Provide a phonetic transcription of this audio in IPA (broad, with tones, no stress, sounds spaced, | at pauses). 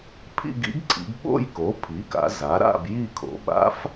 pʰ ḭ˥˧ ɡ ḭ˧˥ ɡ ǀʰ ḭ˩˧ ɡ ɓ o̰˥˧ j k o˩˥ pʰ i˩˥ k a̰˩˧ z a˩˥ ɾ a̰˥˧ b j i˥˧ kʰ o̰˩˥ ɓ a̰˧˥ f